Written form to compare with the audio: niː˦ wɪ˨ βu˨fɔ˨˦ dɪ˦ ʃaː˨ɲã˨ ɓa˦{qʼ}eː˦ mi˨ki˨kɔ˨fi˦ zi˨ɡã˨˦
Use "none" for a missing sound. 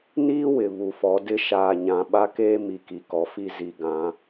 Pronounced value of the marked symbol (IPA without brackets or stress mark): k